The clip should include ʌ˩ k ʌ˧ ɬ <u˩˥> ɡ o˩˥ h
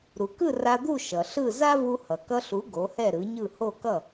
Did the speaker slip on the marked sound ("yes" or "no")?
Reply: no